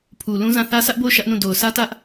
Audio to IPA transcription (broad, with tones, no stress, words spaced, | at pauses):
pʰu˨lũ˦zã˦˨ θä˦sʰä˦ʔbo˦˨ʊ̯ ʃä˦ʔnũ˦˨ do˨ʊ̯sʰä˦tä˦ʔ